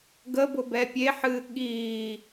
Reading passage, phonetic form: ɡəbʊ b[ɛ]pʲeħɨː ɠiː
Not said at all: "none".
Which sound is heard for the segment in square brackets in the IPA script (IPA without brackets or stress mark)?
ɛ